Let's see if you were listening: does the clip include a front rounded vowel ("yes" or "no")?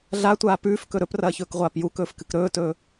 no